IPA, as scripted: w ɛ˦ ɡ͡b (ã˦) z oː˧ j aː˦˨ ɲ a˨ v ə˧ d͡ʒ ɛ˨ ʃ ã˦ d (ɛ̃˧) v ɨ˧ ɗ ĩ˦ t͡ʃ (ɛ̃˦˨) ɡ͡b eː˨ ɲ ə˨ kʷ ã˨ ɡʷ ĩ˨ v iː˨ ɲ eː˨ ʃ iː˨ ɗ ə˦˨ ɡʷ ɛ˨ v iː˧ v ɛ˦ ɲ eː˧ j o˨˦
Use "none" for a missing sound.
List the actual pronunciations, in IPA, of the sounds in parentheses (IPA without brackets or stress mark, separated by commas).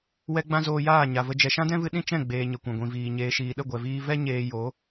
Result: ã˦, ɛ̃˦, ɛ̃˦˨